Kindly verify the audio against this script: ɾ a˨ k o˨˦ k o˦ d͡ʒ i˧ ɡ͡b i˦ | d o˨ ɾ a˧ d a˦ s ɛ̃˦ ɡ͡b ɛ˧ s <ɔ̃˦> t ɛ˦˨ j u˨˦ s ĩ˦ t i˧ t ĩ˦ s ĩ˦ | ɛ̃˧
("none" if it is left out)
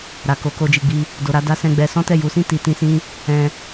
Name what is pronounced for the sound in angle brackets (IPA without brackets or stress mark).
ɔ̃˦